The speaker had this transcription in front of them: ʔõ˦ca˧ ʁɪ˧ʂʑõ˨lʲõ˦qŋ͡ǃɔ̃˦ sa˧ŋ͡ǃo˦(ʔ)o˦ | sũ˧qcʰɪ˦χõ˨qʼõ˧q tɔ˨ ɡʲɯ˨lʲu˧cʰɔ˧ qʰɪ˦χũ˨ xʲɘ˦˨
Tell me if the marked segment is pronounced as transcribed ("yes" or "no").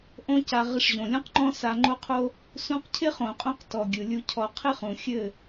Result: no